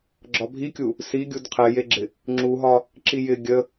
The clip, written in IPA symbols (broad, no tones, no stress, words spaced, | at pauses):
ɡ͡ǁɒbʱikʲu | si ɡʲudqʰɛjeɡ͡ǁɪ | ŋ͡ǁuɦɒ | ǁijɪ ɡʲə